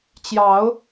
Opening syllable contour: rising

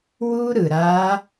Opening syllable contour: high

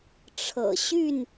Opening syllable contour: low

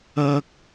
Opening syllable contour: high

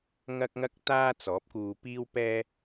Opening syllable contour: high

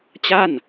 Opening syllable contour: falling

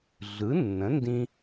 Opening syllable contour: rising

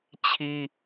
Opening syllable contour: high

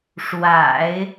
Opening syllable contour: low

